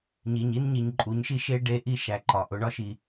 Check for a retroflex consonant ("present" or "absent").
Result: present